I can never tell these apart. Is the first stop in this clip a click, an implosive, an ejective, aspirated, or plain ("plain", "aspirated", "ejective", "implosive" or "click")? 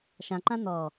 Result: click